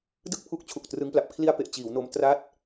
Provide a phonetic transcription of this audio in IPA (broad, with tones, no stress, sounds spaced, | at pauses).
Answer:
d ɯ˥˩ k̚ pʰ u˦˥ k̚ t͡ɕʰ u˨˩ k̚ t r ɯ˦˥ ŋ p l a˨˩ p̚ kʰ l i˧ a̯ p e˨˩ ʔ t͡ɕ iː˩˦ w n o˧ m t r a˦˥ t̚